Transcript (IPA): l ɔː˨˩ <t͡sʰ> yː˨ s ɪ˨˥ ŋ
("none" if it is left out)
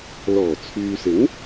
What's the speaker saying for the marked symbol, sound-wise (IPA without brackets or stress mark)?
t͡sʰ